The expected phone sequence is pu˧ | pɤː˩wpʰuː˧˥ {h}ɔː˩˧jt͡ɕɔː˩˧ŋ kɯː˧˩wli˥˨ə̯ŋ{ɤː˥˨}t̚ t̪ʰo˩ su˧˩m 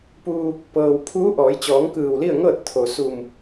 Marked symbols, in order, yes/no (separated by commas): no, yes